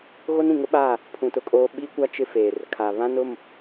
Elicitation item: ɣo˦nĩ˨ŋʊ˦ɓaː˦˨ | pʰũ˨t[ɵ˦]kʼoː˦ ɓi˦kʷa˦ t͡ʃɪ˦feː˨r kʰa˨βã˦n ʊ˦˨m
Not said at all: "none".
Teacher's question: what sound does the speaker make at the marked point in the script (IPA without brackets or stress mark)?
ʊ˦